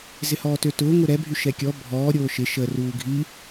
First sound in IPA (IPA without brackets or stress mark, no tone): z